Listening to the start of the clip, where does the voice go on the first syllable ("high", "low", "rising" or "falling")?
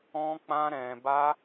high